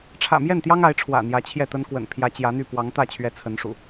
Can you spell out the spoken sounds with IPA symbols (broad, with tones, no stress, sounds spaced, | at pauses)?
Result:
ʈ͡ʂʰ ä̰˨˩ m j ɛ˥˨ n t̪ j ɑ˦ ŋ a˨˦ ɪ̯ ʈ͡ʂʰ w ä̰˨˩ n̪ j ä˨˦ t͡ɕʰ j ɛ˥˨ t̪ ə˦ n k w ə̰˨˩ n pʰ j ä˨˦ t͡ɕ j ä˨˦ n̪ y˥˨ p w ɑ˨˦ ŋ t̪ ä˥˨ t͡ɕʰ ɥ ɛ˦ t͡sʰ ə˨˦ n ʂ ṵ˨˩